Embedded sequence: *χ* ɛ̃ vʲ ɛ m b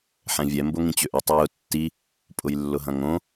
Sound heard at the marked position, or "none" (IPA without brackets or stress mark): ħ